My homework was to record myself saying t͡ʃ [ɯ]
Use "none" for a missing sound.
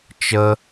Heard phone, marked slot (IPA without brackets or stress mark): ə